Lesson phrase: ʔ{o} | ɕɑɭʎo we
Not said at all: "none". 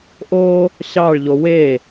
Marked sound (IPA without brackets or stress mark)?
o